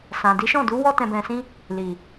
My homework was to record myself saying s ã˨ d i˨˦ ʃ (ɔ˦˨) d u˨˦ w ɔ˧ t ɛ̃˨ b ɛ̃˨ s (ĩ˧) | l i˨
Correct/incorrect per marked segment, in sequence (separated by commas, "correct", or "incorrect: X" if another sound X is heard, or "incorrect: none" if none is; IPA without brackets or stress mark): incorrect: ɔ̃˦˨, correct